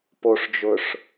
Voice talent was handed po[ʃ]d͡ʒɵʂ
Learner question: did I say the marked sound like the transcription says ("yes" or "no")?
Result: no